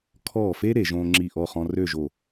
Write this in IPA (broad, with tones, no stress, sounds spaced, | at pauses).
kʰ ɔː˧˩ f e˦ ɾ e˧˩˧ ʒ õː˦ ŋ͡ǁ i˧˩ ʔ ɔ˥˨ χ ɔ̃˦ r ø˥˨ ʒ o˧˩